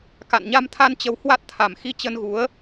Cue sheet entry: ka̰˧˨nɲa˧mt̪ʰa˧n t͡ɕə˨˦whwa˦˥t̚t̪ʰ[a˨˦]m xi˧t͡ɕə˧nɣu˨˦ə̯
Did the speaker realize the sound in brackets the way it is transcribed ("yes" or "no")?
no